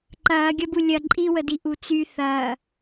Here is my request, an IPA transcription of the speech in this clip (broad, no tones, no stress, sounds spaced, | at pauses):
ǃ ɐː ɡʲ ɐ b u lʲ ɐ ǃʼ i w ə d i ʔ u t͡s y θ ɐː